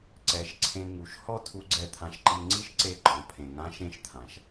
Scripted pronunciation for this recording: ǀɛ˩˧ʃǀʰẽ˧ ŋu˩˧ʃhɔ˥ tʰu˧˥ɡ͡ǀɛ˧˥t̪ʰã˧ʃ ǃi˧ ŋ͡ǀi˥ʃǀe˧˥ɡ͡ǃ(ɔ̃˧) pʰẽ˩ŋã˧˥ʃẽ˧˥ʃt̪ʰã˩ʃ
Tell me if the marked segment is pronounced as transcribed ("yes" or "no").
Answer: no